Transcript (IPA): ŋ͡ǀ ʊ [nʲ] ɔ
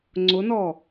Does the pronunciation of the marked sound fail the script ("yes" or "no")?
yes